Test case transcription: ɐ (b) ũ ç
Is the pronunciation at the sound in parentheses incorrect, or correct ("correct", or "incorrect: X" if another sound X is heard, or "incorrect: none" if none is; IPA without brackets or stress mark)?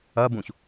correct